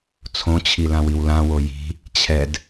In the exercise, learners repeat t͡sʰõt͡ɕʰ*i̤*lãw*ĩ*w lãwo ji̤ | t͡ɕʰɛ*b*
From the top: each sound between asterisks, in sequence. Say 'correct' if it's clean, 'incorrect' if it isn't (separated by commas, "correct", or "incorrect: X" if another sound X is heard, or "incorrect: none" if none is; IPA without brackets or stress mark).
incorrect: i, incorrect: i, incorrect: d